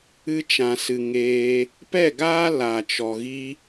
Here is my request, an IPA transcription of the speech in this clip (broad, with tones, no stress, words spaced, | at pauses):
ɨ˧t͡ʃã˨ sɨ˨ ŋeː˧ | pɛ˦˨ɡaː˦ la˨t͡ʃɔ˨ ɣi˧